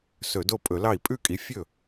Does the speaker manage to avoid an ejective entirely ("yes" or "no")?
no